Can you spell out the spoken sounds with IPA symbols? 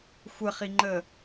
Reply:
xʷəχiŋ͡ǃə

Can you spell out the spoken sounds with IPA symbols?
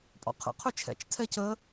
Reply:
pʼɔ̰qʰə̰ qʰøt͡ʃʰɛ̰t͡ʃ tʰɛcə

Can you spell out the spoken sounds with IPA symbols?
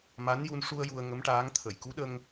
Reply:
ma˧˥nju˧n ʂu˧ə̯ ju˧ə̯ŋə˧˥mʈaː˧˥ŋ t̪ʰə˨˩˨jku˧˥ɗə˧ŋ

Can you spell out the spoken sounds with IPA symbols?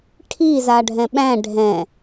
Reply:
ʈʰizaɖʱɛ̃ ɓæ̃ ɖʱɛ̃

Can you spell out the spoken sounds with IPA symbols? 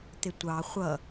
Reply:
t̪ɪtʷɑ χʷʌ

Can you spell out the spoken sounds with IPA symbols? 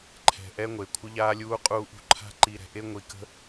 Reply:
ǃʰɛ̤˨ ʔɛ˦ ŋʷe˨kʷʰə˦ʎaː˦lʲuː˦ qʼuː˦ʔṳ˦ ǃʰa̤˦ ǃi˨ɾɛ̤˨ʔe˦ ŋʷi˨kə̤˦

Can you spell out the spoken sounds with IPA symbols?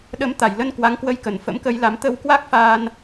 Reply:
ɗə˨˦mt̪a˨˩jlə˧n kwa˨˦ŋkwə˧jkə˨˩n fə̰˧˥mkə˧j la˨˦m t̪ə˧wkwa˦˥k̚faː˧n

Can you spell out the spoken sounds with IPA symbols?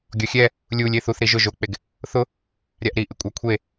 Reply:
ɡʲɔxʲɛ | lʲulʲ eθuθ ɾiʒʊ ʒok͡peɡ | θʊ | ɾʲaʔɾiʔɪ kʷʼakʷʰe

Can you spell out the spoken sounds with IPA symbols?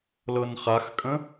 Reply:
lɤnχaxkʼə̃

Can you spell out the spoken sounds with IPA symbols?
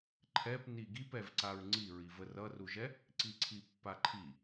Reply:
ǃʰɛpni ɡipɛvǀaɹ ŋ͡ǀiɹi vərʌruʒɛ | ǀiǀʰipːaǃʰi

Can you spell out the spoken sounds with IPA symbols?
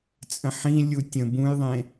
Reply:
t͡sʼə̃ħĩ lʲutʲə̃ bũjðˤẽ

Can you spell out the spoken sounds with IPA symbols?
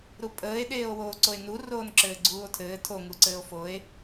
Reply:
ɾupʼəːe̯ ɗeːo̯woːǀoe̯nu roːnǁɘːɡ͡ǀuːo̯tʰɘː tʰo ŋuǀɘːo̯foe̯

